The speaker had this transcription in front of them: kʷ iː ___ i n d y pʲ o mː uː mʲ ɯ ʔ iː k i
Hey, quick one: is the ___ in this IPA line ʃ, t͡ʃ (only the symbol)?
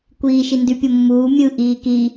ʃ